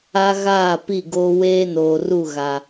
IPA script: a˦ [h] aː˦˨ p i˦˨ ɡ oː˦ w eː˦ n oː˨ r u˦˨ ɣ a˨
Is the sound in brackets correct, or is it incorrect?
incorrect